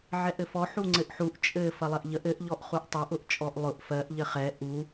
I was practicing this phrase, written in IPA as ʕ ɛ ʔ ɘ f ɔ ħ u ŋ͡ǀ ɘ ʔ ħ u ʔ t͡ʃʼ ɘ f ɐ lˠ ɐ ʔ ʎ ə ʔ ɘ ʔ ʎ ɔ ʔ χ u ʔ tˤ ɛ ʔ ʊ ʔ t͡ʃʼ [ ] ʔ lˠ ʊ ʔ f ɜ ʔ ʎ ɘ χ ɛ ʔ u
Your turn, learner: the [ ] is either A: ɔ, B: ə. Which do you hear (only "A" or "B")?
A